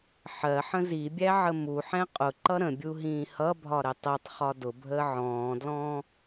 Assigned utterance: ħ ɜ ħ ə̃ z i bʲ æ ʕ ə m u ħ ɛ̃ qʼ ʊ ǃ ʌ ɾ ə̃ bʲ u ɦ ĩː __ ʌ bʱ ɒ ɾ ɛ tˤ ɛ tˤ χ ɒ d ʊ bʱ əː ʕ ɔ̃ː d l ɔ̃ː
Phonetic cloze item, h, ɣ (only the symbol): h